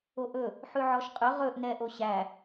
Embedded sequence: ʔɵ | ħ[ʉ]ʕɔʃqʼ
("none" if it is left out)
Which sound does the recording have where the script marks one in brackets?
ʉ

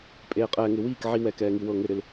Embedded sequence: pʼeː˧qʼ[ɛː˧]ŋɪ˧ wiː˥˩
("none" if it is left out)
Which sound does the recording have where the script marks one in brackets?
ɛː˧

